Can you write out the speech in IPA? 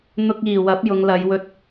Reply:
n̪ ʊ˧ k̚ iː˨˩ w ɐ˨˥ p̚ j ʊ˨˧ ŋ l ɐ˨˧ j w ɵ˧ t̚

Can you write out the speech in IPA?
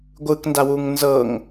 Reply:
ɡʷ ɯ k n d a w u ŋ n z ɤ ŋ

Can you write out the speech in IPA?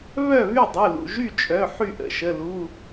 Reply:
β œ˥˨ β y˥˨ dˤ u˩˧˩ l ṵ˩˧˩ ʒ y˥˨ t͡ʃʼ œ˩˧˩ ħ y˥˨ ʔ ə̰˩˧˩ ʃ ə˩˧˩ l u˩˧˩

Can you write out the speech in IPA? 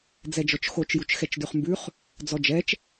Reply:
d͡z ɛ d͡ʒ ɔ t͡ʃ x o t͡ʃ j u t͡ʃ x ɛ t͡ʃ d ʉ χ m b ʉ χ | d͡z ɔ d͡ʒ ɛ t͡ʃ

